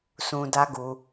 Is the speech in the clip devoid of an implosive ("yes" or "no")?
yes